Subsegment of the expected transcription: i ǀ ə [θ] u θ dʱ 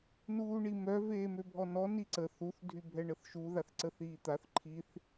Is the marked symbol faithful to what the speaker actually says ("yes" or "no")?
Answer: yes